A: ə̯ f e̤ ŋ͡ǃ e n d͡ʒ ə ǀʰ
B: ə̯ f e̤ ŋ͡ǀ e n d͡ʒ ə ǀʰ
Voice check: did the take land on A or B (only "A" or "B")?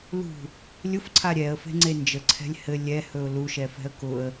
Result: B